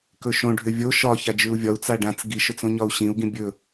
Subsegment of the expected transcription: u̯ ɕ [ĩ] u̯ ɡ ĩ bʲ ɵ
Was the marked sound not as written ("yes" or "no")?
no